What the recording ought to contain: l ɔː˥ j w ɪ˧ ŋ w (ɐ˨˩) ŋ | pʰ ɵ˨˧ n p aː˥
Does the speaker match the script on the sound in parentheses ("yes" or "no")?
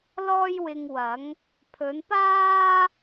no